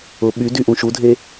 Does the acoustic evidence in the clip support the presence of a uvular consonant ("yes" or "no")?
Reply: no